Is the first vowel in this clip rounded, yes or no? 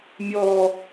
yes